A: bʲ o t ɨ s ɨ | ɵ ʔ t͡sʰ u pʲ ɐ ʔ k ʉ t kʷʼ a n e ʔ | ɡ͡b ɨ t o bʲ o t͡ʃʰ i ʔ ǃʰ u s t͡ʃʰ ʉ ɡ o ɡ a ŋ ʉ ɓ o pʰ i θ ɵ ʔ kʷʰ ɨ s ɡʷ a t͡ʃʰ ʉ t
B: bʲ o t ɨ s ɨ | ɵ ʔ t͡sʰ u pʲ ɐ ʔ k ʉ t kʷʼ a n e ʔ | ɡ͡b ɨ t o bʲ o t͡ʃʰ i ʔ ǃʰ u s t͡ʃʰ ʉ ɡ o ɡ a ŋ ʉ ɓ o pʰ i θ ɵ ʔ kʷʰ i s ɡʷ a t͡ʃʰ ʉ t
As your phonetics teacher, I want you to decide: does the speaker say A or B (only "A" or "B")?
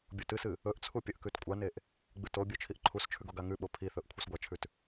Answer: A